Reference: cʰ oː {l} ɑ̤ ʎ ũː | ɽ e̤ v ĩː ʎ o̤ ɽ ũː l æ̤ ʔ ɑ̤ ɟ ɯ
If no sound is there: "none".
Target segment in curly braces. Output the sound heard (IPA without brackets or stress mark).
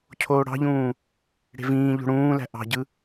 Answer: ɽ